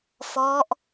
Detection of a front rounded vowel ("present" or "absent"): absent